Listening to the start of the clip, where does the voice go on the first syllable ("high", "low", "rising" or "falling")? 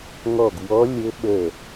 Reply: falling